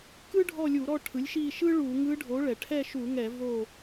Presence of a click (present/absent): absent